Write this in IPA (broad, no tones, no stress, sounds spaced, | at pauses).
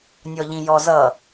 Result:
nʲ ɔ ʎ ĩ j ɔ z ʌ